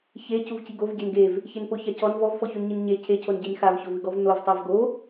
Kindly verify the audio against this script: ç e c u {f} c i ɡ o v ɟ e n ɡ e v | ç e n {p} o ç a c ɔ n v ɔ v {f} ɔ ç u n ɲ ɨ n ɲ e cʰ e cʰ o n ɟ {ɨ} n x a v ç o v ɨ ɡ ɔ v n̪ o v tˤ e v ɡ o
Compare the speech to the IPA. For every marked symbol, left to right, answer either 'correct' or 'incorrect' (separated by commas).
incorrect, correct, correct, incorrect